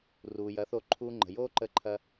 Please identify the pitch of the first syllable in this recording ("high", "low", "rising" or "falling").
low